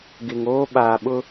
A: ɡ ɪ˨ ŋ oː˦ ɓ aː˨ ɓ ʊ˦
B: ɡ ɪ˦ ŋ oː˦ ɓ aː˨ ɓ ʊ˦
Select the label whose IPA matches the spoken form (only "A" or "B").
A